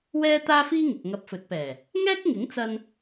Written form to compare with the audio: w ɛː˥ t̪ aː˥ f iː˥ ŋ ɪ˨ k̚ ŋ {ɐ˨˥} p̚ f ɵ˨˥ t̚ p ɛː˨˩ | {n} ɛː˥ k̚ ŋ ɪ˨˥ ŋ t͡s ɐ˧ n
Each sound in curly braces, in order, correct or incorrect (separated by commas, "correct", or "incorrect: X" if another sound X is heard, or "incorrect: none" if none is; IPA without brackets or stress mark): incorrect: ɐ˧, incorrect: ŋ